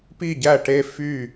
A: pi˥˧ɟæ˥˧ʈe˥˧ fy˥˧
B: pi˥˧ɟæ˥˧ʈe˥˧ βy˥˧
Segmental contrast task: A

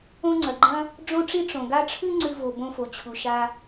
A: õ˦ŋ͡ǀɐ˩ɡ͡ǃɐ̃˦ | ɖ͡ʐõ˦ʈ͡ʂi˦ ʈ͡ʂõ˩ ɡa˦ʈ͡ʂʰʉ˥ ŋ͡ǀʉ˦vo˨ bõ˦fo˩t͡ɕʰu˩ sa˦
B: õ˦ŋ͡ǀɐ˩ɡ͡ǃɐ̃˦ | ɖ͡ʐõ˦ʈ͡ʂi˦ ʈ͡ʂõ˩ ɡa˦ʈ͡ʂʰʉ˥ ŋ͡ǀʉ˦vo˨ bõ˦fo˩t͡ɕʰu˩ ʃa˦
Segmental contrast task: B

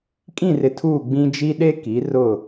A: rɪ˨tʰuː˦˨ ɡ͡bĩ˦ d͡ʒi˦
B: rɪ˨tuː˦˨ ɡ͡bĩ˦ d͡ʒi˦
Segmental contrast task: A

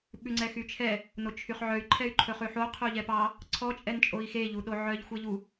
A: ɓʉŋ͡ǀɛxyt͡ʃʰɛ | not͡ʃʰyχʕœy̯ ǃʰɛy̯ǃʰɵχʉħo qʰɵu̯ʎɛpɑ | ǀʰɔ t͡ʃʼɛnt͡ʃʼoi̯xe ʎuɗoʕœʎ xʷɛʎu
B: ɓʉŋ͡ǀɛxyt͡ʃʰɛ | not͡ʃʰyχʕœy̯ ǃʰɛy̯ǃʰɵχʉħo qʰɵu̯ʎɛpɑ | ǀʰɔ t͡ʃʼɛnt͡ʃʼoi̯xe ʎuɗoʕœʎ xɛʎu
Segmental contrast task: A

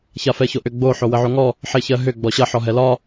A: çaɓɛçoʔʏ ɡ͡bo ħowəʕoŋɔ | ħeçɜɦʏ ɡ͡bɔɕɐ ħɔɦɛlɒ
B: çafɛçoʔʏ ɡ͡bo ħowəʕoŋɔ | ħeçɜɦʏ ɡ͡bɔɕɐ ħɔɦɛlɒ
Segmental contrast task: B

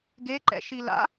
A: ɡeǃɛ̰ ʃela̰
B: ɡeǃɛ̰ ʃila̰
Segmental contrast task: B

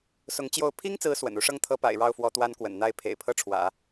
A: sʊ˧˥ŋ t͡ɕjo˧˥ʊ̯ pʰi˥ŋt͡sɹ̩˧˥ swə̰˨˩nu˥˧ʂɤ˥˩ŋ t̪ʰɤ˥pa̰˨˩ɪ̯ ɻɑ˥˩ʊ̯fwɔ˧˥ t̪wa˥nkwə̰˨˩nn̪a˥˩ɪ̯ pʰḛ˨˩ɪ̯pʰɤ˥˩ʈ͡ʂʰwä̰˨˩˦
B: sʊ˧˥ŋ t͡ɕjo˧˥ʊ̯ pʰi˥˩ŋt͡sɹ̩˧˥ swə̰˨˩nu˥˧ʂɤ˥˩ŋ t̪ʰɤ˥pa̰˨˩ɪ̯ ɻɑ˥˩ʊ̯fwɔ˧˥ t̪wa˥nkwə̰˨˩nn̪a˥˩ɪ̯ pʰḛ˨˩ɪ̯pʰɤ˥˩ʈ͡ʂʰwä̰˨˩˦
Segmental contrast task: A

